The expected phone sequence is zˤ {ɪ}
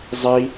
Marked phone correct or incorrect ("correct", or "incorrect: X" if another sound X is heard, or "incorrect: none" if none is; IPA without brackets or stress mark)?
incorrect: i